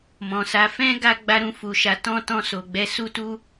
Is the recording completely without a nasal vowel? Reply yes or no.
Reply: no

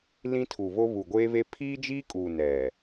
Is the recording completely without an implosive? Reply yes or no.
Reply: yes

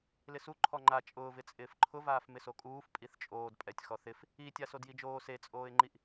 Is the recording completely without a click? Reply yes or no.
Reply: no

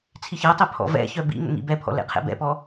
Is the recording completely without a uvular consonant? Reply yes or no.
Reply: no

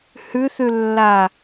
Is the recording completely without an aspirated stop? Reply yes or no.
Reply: yes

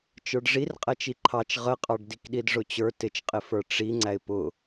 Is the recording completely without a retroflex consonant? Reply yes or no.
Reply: no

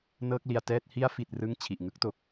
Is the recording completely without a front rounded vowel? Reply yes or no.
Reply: yes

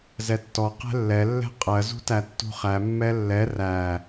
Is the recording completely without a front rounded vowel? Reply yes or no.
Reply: yes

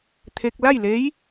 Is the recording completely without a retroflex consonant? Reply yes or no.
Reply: yes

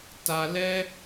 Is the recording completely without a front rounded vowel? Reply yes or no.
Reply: yes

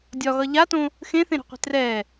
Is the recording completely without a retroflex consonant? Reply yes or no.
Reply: yes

